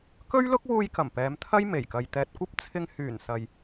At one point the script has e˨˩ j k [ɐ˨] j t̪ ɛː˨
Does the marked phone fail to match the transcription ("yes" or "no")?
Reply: no